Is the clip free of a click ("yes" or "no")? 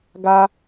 yes